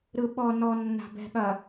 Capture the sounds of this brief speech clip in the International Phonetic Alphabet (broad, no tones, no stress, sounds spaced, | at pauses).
ɾ ɯ ɓ ɔ n ɔ nː a̤ b ɛ̤ ɠ ɐ